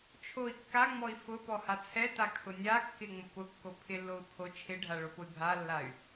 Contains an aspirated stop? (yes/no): yes